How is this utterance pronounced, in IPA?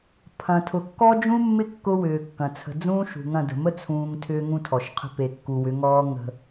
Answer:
pʰɐ̃˨tʰʊ˨ kːɔ˦d͡ʒũ˦mːɪ˦ kːʊ˦wʏː˨kːɐ̃˨ t͡sʰə̤˨d͡zũː˦ ʃṳ˨ ŋɐ̃˦˨də̤˨ mə˦t͡sʰũː˨ŋ tʰʏː˦ŋũ˦tʰɔ˨ʃqʰə̤˦ pe˨kːu˨wʏ˨˦ŋɔː˦ ŋə̤˦

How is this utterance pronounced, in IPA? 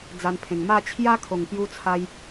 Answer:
d͡za˧npʰẽ˨˩ŋ ma˥˧ t͡ɕʰja˦kʰo˨˩ŋpju˧ t͡sʰa˦j

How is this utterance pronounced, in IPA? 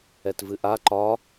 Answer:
ɛtvɨʔa ǃɒ

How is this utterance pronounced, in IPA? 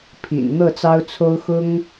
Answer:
pʰḭ˨˩n n̪ɤ˥˩t͡sɑ˥ʊ̯t͡sʰo˥ʊ̯ xʊ˥ŋ

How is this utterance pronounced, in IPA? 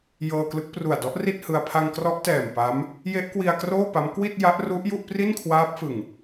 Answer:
jɤː˧klɯ˦˥k̚ pru˨˩a̯ dɔ˦˥ʔ ri˥˩t̚hɯ˧a̯ pʰa˧ŋkrɔ˦˥ʔtɛː˨˩m pa˦˥m | je˦˥ʔkwi˧a̯ kroː˥˩pa˦˥m kwi˥˩t̚ ja˦˥ʔru˦˥ʔ ju˥˩ʔpri˥˩nkʰwaː˦˥p̚fɯ˨˩ŋ

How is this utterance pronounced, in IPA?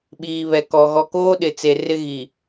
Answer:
ɓiː˨βɛ˨kɔ˨ ɣɔ˨koː˦ɗɪ˨t͡se˨ rɪ˦ ɣi˨

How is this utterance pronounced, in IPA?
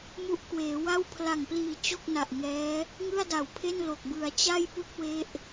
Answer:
mu˦˥ʔkweː˩˦wa˥˩w pʰla˨˩ŋpliː˨˩ t͡ɕo˥˩k̚na˨˩ʔ ŋɛː˦˥ | ŋɯ˥˩a̯da˨˩wpʰe˥˩nlo˨˩k̚ bɯ˩˦a̯t͡ɕa˥˩jpu˥˩k̚ we˥˩ʔ

